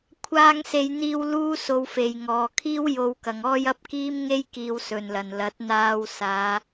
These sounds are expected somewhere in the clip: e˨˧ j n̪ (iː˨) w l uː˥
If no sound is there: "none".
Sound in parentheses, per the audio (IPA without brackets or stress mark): iː˧